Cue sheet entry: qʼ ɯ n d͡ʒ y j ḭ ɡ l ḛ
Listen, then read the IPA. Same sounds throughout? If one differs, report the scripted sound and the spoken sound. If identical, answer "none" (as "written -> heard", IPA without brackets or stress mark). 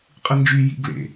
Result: none